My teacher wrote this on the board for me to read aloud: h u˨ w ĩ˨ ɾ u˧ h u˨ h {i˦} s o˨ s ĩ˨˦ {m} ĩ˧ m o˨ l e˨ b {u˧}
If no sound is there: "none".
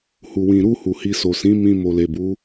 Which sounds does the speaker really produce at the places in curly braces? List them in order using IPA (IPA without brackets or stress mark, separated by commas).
i˧, m, u˨˦